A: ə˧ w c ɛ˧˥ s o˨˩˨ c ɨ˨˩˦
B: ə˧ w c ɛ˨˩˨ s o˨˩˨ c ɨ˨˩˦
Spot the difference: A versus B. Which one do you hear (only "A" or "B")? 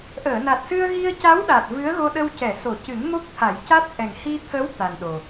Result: B